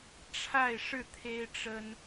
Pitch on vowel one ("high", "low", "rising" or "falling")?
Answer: falling